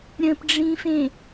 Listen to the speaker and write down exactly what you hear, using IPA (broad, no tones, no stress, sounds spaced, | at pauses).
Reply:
ɾʲ ə̃ p ɖ͡ʐ ĩ f ẽ